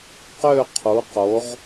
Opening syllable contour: falling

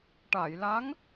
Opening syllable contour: low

